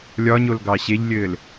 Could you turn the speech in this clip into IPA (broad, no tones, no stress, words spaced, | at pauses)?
lʲɒɲol ɡɑɕeʎlʲɘːl